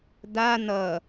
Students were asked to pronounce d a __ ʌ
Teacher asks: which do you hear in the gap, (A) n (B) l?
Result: A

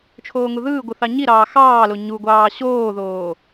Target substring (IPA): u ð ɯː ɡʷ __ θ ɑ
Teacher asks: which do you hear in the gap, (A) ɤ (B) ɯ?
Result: B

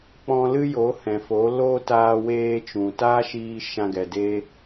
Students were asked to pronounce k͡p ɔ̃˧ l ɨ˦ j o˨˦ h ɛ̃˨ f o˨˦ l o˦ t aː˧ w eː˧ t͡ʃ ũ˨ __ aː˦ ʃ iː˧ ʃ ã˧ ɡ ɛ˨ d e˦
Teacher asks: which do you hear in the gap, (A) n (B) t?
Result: B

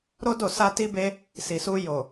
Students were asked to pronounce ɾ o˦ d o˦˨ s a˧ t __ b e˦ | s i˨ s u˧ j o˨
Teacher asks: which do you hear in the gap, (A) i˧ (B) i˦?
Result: B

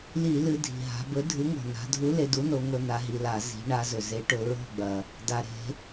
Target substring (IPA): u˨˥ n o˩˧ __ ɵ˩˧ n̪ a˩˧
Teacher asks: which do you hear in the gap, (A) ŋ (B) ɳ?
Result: A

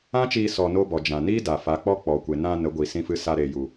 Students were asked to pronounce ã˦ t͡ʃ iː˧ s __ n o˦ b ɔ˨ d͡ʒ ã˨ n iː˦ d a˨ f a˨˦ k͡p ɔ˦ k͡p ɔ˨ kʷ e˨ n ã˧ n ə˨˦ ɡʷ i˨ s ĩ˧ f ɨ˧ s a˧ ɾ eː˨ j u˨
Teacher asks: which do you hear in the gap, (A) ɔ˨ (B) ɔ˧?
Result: B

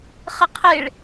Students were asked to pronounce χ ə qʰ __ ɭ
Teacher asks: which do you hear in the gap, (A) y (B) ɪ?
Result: B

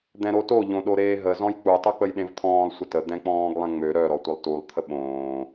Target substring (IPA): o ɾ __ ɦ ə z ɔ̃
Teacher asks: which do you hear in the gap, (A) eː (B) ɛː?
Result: A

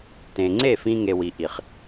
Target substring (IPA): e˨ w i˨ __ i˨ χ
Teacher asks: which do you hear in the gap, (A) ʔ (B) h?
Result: A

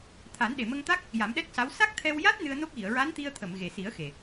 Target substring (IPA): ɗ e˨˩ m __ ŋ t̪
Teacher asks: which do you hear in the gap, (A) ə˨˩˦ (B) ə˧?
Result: B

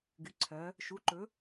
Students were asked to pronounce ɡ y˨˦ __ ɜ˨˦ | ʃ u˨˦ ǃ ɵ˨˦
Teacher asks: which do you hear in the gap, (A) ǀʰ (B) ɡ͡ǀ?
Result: A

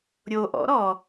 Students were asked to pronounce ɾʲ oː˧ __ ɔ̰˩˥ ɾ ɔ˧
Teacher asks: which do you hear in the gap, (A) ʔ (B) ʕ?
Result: A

